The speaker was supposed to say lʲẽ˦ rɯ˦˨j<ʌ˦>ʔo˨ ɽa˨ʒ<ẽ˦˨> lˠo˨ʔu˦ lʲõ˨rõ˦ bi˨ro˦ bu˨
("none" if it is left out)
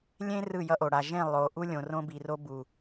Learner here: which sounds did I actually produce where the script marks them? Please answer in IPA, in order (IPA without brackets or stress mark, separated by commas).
ʌ˦, ẽ˦˨